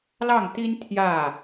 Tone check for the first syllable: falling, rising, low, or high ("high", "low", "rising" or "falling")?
falling